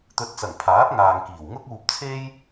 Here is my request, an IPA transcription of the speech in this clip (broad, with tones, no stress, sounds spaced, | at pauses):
t̪ ɵ˨˥ t̚ t͡s ɐ˨˩ ŋ pʰ aː˨˥ p̚ ŋ aː˨ ŋ k iː˨˩ w ŋ ʊ˥ k̚ uː˧ p̚ t͡sʰ e˥ j